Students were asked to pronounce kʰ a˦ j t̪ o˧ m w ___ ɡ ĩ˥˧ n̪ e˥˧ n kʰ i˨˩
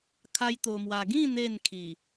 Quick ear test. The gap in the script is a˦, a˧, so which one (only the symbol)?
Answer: a˧